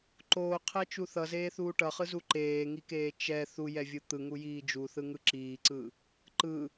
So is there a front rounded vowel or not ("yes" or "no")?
no